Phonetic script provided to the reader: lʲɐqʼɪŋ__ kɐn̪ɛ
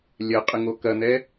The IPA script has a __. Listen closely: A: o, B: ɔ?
A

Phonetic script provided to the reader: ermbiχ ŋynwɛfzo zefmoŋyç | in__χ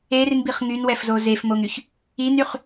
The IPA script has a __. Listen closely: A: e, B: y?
B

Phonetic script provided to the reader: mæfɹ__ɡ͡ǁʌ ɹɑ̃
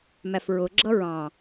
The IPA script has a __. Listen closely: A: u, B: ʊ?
B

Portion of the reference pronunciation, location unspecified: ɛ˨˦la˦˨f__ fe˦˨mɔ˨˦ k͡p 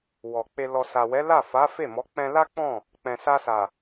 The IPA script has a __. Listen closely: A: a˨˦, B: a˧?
A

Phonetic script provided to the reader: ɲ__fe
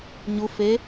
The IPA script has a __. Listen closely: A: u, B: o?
A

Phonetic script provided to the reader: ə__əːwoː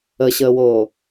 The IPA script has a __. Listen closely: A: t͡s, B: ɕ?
B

